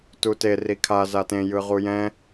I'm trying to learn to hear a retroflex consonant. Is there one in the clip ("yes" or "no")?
no